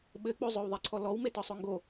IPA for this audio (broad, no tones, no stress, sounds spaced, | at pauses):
ɓ ɘ k͡p o zˤ o w ðˤ i ǀʰ ɔ l ɔ w m e t ɔ sˤ o ŋ ɡ o